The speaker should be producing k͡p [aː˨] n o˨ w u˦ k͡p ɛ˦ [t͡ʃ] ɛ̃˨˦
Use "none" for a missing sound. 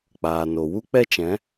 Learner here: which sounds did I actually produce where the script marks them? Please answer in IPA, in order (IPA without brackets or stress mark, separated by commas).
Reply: aː˨, t͡ʃ